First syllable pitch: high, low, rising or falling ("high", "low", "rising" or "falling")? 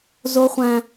high